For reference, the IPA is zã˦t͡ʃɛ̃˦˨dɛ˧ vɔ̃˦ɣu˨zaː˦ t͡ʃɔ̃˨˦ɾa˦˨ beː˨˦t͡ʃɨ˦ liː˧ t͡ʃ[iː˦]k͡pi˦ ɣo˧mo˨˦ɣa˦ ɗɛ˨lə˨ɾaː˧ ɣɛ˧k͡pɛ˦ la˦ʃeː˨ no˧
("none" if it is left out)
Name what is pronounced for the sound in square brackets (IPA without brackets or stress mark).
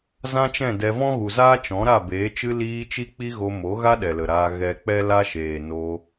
i˦